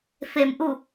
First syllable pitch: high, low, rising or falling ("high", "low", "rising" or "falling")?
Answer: low